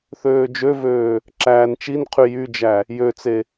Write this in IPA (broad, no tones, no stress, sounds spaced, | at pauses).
θ øː d͡ʒ ø v øː | ǁ æː n t͡ʃ i n qʰ y j y d͡ʒ æ | j ø t͡s e